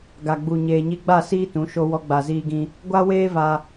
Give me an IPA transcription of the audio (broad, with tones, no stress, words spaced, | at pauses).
ɡa˨ɡ͡bu˨ ɲeː˨ɲi˧ɡ͡ba˦˨ siː˦tũ˨˦ ʃo˧wɔ˧ ɡ͡ba˨ziː˧ɡĩ˧ | ɡʷa˦weː˦va˧